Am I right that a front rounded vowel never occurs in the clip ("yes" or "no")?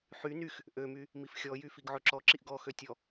no